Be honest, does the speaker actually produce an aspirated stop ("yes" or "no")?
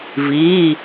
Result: no